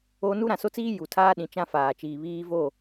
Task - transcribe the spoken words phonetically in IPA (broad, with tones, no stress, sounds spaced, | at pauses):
o˦ n u˦ ɾ ã˨ s o˦ t͡s iː˦ j u˨ tʰ aː˦ ɗ ĩ˨ t͡ʃ ã˦ f aː˨ t͡ʃ iː˨ β iː˦ v o˦˨